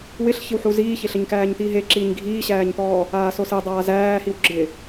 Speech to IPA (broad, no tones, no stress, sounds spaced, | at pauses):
w ɪ ɬ ç ɪ w ħ u z iː ç e ɬ ɘ ɲ k æː ɲ t̪ iː ɦ e ǁ iː ɲ ɡʱ iː ɕ æː ɲ t̪ ɔː | aː s o s e dˤ aː z æː h i w ɡ͡ǁ ɪ